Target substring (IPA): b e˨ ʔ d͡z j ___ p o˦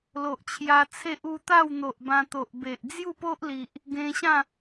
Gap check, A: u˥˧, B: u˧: A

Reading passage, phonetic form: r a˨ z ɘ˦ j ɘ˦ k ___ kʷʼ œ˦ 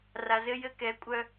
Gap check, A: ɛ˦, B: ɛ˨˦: B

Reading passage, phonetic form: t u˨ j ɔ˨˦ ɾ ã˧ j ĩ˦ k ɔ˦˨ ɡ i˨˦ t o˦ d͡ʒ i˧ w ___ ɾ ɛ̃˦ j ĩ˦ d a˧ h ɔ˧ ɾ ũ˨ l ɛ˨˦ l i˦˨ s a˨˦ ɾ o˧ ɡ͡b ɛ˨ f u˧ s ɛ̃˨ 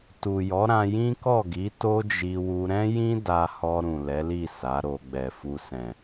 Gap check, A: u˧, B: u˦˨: A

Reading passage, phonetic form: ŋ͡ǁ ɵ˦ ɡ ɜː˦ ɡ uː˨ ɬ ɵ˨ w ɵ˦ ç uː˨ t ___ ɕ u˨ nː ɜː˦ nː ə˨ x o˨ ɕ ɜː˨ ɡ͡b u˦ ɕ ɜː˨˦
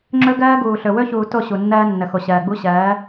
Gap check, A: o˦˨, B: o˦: A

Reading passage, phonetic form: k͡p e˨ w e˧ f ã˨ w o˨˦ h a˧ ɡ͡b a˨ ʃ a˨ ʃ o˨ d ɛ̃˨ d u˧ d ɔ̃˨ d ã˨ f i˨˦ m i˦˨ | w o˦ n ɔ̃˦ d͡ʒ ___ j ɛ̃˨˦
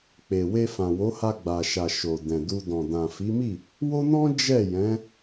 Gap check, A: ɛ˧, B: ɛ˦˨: B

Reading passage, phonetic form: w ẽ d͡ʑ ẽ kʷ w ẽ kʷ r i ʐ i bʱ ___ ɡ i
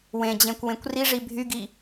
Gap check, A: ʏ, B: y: B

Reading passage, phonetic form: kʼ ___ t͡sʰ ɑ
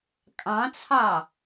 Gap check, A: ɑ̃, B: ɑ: A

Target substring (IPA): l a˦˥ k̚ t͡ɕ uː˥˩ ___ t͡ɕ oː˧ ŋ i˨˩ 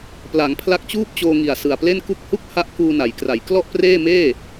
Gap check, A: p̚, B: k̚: A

